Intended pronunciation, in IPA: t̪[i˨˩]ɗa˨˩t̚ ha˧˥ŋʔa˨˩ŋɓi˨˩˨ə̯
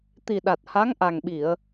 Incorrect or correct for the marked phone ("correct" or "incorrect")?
correct